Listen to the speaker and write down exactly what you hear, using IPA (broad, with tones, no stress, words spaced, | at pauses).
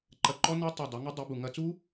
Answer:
ǃɐ˧˩ ǃɔ˦˥nɐ˦˥tˤu˧˩ dˤɐ˩˥ŋɨ˦˥dˤi˩˥ bu˩ŋɐ˦˥ t͡su˦˥